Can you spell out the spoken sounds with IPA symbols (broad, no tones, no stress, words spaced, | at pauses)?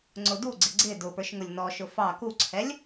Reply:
ŋ͡ǀʊduɡ͡ǀɪ ɡ͡ǀɪ dʊpə˞ʃ ŋʊlʲnɔʃʊ fɑ kuǀʰɛlʲ